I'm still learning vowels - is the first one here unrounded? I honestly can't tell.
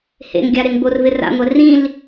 yes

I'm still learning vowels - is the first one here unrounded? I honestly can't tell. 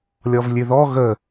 no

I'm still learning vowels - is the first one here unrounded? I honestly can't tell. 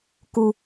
no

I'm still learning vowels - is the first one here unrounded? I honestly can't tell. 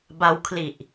yes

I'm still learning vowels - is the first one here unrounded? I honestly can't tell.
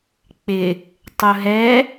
yes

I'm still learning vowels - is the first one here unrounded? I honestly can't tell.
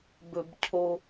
no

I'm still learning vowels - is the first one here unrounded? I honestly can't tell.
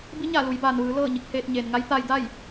yes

